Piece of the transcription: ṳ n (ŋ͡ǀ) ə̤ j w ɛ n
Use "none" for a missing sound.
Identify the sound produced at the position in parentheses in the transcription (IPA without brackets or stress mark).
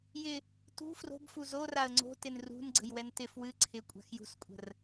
ɡ͡ǀ